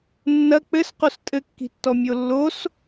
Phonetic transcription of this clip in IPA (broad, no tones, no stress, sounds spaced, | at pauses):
nː ɐ k͡p ɘ s q o s tʼ ɘ kː i̤ tː ɔ mʲ o lː o s